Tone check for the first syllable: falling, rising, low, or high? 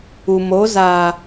low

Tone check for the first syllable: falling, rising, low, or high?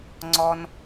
high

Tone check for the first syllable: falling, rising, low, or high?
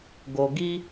low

